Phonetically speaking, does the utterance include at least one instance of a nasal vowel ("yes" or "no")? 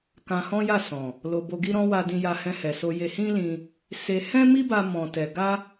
yes